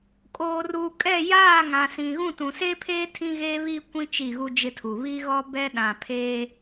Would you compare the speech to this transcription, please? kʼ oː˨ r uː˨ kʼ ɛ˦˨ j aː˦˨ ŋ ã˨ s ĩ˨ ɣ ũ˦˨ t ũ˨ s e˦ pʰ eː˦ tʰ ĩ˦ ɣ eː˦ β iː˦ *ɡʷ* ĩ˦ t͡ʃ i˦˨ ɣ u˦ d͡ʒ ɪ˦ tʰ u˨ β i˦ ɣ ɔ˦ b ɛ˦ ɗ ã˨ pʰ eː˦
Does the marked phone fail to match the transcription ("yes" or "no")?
yes